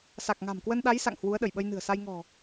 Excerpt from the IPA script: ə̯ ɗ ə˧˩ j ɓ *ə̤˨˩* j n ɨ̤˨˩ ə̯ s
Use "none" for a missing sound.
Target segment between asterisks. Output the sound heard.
ə˧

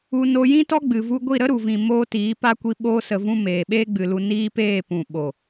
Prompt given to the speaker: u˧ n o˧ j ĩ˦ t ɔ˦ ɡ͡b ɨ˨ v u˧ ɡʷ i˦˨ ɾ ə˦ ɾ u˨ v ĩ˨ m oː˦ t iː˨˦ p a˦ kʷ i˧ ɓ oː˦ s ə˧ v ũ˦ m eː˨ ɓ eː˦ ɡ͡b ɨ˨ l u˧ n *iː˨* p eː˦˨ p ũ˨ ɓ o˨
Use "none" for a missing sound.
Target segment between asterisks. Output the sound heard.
iː˦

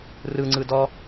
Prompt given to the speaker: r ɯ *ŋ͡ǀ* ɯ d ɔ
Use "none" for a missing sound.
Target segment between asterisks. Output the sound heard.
ŋ͡ǀ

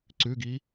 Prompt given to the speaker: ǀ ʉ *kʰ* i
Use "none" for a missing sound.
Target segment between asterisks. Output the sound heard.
ɡ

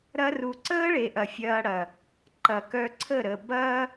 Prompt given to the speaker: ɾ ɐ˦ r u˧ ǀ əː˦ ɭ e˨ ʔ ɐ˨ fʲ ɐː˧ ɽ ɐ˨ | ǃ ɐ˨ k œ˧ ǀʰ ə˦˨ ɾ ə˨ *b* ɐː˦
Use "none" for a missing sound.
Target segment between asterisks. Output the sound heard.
b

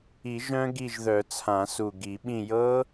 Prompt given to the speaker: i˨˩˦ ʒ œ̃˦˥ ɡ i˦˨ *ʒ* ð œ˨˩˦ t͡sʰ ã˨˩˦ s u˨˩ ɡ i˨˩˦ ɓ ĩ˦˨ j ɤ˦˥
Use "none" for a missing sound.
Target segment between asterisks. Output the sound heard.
ʒ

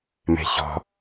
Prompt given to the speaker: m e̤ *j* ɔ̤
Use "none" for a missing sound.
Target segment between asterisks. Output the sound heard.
ç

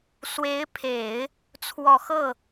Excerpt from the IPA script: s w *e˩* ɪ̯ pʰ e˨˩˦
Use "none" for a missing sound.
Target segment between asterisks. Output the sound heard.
e˧˥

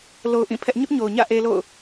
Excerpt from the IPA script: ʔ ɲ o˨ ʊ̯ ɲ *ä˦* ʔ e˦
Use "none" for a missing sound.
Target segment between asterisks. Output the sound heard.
ä̰˦˨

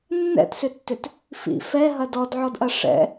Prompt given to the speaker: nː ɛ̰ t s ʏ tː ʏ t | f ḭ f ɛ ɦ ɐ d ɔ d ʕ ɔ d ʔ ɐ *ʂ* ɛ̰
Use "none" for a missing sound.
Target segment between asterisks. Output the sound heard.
ʂ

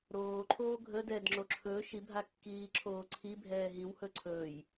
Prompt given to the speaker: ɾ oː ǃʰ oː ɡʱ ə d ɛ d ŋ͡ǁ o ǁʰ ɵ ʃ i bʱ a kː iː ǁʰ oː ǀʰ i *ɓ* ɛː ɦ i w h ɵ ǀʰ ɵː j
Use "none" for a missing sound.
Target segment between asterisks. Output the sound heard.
bʱ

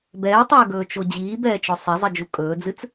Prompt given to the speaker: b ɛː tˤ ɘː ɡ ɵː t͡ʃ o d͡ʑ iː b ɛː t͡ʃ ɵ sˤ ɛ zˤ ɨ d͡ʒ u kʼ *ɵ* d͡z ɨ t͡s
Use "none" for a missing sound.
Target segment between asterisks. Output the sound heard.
ɵː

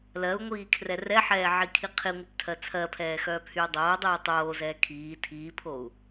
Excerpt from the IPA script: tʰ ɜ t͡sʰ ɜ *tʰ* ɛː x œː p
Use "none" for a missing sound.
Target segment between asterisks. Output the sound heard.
pʰ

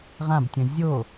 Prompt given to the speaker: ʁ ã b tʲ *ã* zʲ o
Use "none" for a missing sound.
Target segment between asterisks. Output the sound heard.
ə̃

